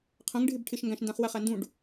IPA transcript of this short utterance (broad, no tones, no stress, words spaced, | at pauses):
qʰɛ̃ŋ ɖʱɪbʈʰɪʃ ŋɡæ̃ʃndæ̃χwæχ ændũɖ